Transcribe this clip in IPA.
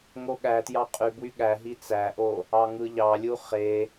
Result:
ŋ o ɠ æ t j ɑ qʼ y b w y ɠ æ ɦ i t͡s æ ʔ o | ɑ ŋ ɯ ʎ ɑ lʲ u χ e

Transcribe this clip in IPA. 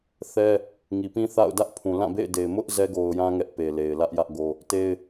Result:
θ ɛ˦ | ŋ i˨ p ĩ˦ θ a̰˦˨ ʊ̯ d ä˦ ʔ pʰ ũ˨ l ã˦˨ b ḛ˦˨ ɪ̯ d e˨ ɪ̯ m ʊ˦ ʔ z ɛ˦ ɡ o˨ ʊ̯ j ã˦ ŋ ɛ˦ ʔ p e˨ l e˨ ɪ̯ l ä˦ ʔ j ä˦ ʔ ɡ o˦ | t e˦ ɪ̯

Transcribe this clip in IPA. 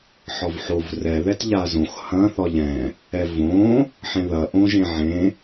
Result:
ħ ɒ v ħ o v r ɛ ð ɛ t ʎ a z õ x h ɐ̃ θ ɒ ʎ ɛ̃ | ɛ v õ | ħ ẽ ð ɐ ʔ õ ʒ ẽ ʕ ẽ

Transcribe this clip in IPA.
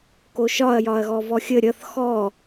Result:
k o ʃ ɒ ɐ̯ j ɒ ɐ̯ ɣ ɔ v ɔ xʲ ə ɾʲ ʌ θ x ɔ

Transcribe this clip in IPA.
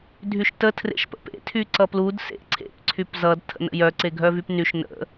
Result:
dʱ y ʃ t ə tʰ r ḛ ʃ p ə̰ p ḛ tʰ y ǀ ʌ p l u d s ḛ ǀʰ ḛ p ǀʰ y p z ʌ d tʰ ə̰ n ə̰ j œ ǀ e ɡʱ œ v y p n y ʃ n ə̰

